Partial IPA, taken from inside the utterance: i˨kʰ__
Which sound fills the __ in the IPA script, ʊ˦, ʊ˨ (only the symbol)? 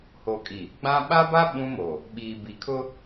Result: ʊ˦